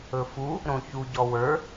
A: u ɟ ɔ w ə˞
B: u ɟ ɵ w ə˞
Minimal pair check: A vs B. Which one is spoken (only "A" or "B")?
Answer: A